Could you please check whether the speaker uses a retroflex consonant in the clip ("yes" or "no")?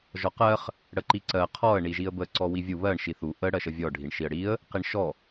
yes